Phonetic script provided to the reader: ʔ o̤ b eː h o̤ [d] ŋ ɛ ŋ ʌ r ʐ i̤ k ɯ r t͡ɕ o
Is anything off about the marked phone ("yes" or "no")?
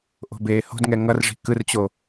no